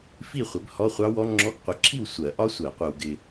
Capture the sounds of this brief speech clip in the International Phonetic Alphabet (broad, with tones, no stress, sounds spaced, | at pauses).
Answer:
f i˥˨ χʷ ɪ˨˦ b h ɔ˧˥˧ χʷ ɑ˦˥ w ɔ˦˥ ŋ͡ǁ ɔ˧˥˧ ɡ qʷ ə˨˦ ǁʰ i˥˨ w sʷ ɜ˨˩˦ ʔ ɒ˦˥ sʷ ɜ˨˩˦ qʷ ɜ˨ w ɡ ɪ˨